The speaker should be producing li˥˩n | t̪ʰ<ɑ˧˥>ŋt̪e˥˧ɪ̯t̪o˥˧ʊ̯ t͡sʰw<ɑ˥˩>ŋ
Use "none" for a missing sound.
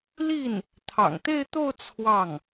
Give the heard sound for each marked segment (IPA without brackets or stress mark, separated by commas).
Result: ɑ̰˨˩, ɑ˥˩